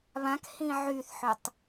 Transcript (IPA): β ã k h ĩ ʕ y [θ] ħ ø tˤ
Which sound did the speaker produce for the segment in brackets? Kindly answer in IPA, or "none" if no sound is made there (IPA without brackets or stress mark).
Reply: θ